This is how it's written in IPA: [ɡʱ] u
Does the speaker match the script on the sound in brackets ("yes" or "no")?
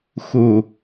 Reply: no